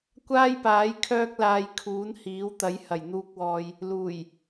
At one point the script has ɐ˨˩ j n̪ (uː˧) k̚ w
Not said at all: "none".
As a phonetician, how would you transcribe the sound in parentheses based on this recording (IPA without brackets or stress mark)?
uː˧